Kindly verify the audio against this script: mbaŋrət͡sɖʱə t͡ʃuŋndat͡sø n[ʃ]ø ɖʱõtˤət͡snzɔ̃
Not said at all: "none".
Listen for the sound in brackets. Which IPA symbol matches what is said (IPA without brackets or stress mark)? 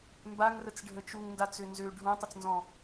z